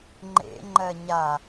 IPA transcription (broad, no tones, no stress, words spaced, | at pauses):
ŋ͡ǃḛ ŋ͡ǃɜɲa